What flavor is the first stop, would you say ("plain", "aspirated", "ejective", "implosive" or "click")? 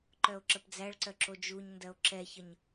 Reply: click